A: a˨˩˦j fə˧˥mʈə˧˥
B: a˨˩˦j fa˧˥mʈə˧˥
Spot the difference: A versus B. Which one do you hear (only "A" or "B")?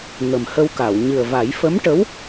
A